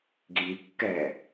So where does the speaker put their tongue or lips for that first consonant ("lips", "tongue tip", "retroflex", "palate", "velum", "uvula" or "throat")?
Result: velum